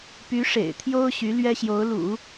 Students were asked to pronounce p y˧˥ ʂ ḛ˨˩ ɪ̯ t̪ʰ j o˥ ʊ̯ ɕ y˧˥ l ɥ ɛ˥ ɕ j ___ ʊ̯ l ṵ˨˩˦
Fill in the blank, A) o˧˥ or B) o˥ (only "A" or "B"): A